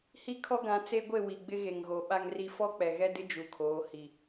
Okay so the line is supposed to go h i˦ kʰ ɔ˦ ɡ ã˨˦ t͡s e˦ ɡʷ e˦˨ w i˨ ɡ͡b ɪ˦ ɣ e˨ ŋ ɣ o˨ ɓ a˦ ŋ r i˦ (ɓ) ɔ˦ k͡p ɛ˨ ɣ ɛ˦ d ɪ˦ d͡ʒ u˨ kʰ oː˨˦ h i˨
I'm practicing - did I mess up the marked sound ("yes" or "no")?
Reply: yes